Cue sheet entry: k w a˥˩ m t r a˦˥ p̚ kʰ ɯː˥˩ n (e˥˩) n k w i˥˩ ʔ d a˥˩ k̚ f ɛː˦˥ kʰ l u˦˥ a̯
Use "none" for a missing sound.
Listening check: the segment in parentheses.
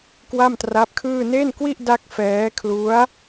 e˥˩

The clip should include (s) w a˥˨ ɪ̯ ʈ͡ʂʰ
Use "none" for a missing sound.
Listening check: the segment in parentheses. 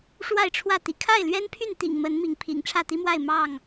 ʂ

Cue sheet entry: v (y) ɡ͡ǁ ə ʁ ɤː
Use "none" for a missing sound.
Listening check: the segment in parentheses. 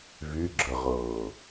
y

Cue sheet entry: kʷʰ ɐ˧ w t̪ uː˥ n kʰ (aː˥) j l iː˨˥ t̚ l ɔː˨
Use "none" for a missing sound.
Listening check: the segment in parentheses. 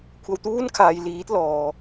aː˨˧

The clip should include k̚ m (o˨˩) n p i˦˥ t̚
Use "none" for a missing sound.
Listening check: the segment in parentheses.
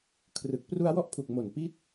o˨˩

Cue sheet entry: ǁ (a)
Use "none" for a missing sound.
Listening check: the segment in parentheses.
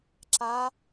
a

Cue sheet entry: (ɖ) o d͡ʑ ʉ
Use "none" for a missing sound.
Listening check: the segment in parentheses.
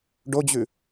ɖ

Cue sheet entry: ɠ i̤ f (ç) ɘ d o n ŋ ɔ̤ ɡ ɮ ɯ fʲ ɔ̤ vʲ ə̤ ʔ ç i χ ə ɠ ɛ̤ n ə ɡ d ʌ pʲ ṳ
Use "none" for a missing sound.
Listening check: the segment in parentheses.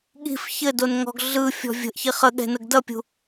ç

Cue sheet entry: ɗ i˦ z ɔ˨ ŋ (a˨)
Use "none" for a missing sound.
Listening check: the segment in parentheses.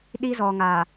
a˨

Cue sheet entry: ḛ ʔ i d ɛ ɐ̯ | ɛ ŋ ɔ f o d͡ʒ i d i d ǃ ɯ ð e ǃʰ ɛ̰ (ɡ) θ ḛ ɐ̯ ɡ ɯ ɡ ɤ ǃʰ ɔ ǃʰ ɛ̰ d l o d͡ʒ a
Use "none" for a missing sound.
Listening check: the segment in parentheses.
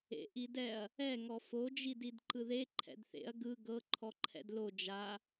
d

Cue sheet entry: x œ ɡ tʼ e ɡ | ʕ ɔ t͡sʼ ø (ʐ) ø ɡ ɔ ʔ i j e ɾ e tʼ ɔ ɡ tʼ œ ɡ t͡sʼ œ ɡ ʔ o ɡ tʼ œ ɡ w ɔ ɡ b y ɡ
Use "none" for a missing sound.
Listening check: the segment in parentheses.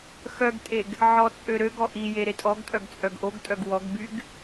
ɾ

